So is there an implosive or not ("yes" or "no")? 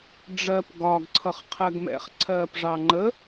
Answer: no